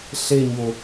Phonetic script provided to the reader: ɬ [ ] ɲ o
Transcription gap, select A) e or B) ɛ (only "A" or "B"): A